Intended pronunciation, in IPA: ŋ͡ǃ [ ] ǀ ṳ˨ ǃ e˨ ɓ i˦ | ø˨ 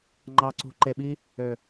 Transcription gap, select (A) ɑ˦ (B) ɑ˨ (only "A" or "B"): B